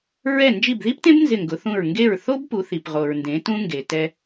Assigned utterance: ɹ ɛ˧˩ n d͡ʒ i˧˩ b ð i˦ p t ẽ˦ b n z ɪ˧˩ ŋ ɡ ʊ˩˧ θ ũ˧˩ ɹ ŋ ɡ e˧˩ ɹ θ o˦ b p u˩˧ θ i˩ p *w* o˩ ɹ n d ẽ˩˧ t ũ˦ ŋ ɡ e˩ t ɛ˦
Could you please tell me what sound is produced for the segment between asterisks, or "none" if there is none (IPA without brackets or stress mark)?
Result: ʁ